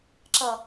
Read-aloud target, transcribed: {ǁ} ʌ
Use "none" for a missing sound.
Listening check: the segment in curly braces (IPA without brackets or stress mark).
ǁ